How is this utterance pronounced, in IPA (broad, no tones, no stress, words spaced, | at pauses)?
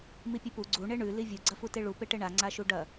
mipʲʉpu ɡ͡ǀu ɳeɳʉ livʲu ɡ͡ǀɐfuteɭu peʈeɳa ŋ͡ǀaʃuɖɐ